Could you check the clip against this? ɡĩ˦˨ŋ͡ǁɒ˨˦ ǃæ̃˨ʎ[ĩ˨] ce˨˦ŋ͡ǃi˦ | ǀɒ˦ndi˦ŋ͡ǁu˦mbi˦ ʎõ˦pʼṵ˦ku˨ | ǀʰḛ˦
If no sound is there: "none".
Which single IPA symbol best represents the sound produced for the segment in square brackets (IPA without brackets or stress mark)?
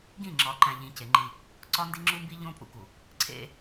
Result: ĩ˨